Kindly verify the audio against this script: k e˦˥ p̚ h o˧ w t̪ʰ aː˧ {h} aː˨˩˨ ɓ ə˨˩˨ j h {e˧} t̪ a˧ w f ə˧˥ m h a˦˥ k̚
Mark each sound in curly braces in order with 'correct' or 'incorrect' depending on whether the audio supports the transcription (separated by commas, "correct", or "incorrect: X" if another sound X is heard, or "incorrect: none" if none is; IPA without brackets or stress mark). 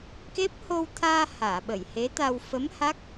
correct, incorrect: e˧˥